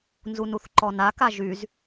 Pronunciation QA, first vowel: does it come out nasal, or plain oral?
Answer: oral